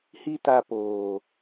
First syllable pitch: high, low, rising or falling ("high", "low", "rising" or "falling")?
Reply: high